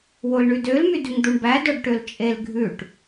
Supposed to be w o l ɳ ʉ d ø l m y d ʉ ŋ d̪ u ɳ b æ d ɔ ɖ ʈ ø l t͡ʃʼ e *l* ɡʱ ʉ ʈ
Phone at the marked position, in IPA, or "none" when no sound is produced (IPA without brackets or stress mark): l